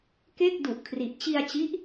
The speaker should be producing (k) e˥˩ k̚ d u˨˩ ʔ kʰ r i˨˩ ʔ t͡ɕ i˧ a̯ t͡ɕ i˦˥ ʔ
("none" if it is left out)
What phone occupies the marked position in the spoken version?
k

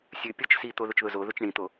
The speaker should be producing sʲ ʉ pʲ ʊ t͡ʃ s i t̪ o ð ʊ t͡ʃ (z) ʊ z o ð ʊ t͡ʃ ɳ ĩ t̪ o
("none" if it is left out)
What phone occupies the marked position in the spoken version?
ð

